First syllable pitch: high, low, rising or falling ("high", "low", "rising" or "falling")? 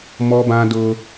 high